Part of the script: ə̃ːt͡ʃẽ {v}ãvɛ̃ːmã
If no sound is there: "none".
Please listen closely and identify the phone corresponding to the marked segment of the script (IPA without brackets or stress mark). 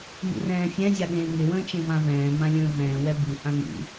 v